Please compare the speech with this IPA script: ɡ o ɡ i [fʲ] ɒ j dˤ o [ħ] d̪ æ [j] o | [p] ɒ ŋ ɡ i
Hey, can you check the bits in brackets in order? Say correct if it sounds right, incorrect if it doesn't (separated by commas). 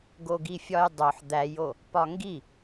correct, correct, correct, correct